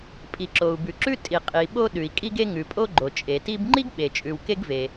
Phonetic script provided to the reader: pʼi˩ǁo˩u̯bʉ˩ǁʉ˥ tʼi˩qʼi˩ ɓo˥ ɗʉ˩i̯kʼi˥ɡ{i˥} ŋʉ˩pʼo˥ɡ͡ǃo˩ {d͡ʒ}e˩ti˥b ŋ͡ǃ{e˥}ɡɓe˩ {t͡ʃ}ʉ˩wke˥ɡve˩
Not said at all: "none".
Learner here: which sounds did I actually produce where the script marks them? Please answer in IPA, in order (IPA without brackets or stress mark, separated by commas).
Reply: e˥, t͡ʃʼ, i˥, t͡ʃʼ